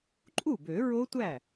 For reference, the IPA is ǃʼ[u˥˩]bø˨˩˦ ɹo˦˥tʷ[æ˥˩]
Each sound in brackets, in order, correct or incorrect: correct, correct

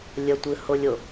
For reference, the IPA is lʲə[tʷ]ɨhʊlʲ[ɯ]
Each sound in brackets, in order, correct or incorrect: correct, incorrect: ʊ

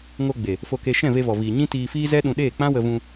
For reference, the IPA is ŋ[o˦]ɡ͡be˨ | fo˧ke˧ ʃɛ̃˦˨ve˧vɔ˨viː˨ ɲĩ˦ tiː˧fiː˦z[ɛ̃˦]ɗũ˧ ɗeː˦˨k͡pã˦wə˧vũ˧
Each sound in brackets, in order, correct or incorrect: incorrect: o˧, incorrect: ɛ˦

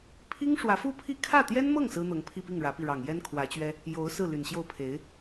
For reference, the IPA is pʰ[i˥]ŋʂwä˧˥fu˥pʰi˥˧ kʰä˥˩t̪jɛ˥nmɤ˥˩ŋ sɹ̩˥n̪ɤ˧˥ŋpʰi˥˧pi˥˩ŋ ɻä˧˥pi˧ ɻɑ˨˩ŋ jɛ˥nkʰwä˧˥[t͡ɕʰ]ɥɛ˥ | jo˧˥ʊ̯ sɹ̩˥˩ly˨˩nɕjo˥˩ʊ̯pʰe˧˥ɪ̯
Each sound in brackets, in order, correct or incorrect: correct, incorrect: t͡ɕ

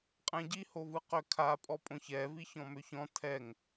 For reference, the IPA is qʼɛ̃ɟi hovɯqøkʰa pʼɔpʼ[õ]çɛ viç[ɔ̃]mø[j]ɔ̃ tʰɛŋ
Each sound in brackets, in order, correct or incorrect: correct, correct, incorrect: ç

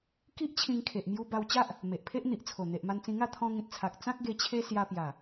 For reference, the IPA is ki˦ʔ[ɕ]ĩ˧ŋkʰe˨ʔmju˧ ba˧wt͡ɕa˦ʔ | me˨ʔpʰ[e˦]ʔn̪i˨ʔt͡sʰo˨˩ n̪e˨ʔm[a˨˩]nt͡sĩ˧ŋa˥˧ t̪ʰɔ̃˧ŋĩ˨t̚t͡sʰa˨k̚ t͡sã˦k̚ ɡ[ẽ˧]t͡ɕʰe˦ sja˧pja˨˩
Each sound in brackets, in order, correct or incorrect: incorrect: t͡ɕʰ, correct, incorrect: a˧, incorrect: e˧

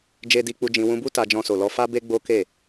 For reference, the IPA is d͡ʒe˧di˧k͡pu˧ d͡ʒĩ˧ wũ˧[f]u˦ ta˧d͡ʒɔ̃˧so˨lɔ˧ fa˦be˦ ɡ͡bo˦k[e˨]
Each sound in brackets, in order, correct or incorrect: incorrect: b, incorrect: e˦˨

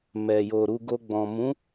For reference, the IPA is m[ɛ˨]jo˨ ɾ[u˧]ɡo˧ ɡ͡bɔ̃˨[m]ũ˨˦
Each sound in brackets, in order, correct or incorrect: correct, correct, correct

